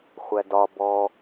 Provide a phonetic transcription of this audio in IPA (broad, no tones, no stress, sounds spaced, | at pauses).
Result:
χʷ æ d ɒ b ɔ